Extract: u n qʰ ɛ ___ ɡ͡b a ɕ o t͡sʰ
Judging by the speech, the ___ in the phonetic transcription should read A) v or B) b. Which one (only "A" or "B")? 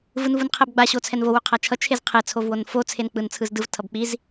B